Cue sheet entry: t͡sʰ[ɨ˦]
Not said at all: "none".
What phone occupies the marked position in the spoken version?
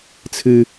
ɨ˦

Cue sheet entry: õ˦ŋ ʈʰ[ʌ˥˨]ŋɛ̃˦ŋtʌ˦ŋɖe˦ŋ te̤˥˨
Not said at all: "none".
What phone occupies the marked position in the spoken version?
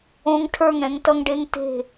ə˞˥˨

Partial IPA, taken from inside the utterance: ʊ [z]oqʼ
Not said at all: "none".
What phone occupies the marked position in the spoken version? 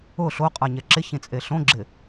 ɬ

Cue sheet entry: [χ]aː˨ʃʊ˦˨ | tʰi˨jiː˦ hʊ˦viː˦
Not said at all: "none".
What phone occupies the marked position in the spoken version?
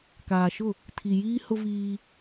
k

